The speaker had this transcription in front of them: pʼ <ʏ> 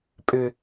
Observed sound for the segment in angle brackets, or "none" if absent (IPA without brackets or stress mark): ʏ